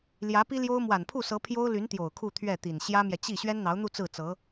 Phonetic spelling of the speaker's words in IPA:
l j ä˧˥ p i˥ l j o˥ ʊ̯ m w a˨˩ n pʰ u˥˩ s ɤ˧˥ pʰ j o˥ ʊ̯ l y˧˥ n t̪ j o˨˩ ʊ̯ kʰ u˥˧ t̪ʰ ɥ ɛ˥˩ t̪ i˨˩ n ɕ j ä˥ m j ɛ˨ t͡ɕ i˥˩ ɕ ɥ ɛ˥ n n̪ ɑ˧˥ ʊ̯ n̪ u˥˧ t͡s ɹ̩˥˩ t͡s ɤ˧˥

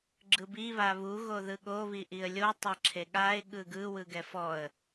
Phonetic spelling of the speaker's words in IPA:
ɡ͡ǁ ɯ b i β a β u ɣ o ð ɯ ɠ o β i ʔ i ə̯ lʲ o tˤ a ǁʰ e ɠ a ɪ̯ ɠ ɯ ɡ ɯ w ɯ ɡ ɛ f ɔ ə̯

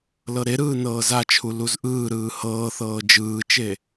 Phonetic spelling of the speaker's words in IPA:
l ɤ ɾ e ɾ ɯː n ɤː z a t͡ʃʰ u l u z ʔ ɯː ɾ ɯː h ɤː θ ɤː d͡ʒ ɯː t͡ʃ e

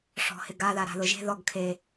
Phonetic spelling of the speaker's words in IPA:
ʂ ɔ̤ h ɪ ɡ a ð a ɾ a̤ ð ʊ ʒ e̤ ð ɔ ɡ kʰ e

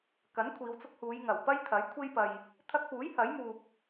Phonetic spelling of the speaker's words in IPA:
k ɐ˨˥ n kʷʰ iː˨˧ w t͡s ʊ˧ k̚ h uː˨˧ j ŋ ɐ˨˩ w p ɐ˥ j t̪ʰ ɐ˨˥ j kʷʰ e˥ j p ɐ˧ j | t̪ʰ ɐ˧ k̚ p uː˨˥ j h ɐ˨˥ j m uː˧ p̚

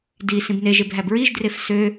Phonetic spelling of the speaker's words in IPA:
d i s ĩ b n e ʒ e b ɦ æ b ɹ i ʒ d r e f s ø

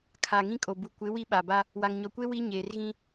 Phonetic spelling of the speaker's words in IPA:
kʰ a˨ ŋ ĩ˦ kʼ o˨ b u˨ kʷ ɪ˨˦ w i˦ ɓ a˨ b a˦ | w a˨ ŋ ɲ ɔ˨ kʷ e˦ w i˦ ɲ eː˨ r ɣ ĩ˦

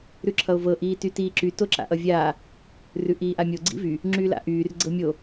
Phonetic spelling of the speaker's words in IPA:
ɾ ʉ ǁʰ ʌ o̯ v ɤ ʔ iː t y t iː ǁ y t o ǁ a̰ ʔ ʌ vʲ aː | r ʉ ʔ iː ʔ a mʲ o ɡ͡ǀ ḭ v y | ŋ͡ǁ yː l a̰ ʔ yː r ɡ͡ǀ ɤ mʲ o

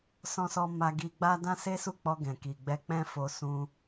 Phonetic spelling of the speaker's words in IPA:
s ɔ̃˧ s ɔ˧ m a˧ ɡ i˧ ɡ͡b a˦ d ã˦ s e˦ s u˦˨ k͡p ɔ˧ ɡ ɛ̃˨ k i˨ ɡ͡b ɛ˧ k͡p ɛ̃˦ f o˧ s ũ˧

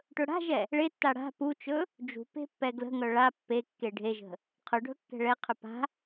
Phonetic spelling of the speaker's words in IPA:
ʈ ɵ ɽ a̤ ʒ ɛ | ɭ e tː a ɽ a̤ p u t͡ʃ ɵ | d͡ʒ ṳ p e̤ pː ɛ ɡ l ə̤ ŋ œ ɭ a pː e kː e ɖʱ e ʒ ə̤ | qʰ ɵ ɖʱ ɵ kː ɛ̤ ɭ ɛ qʰ ɵ p a̤

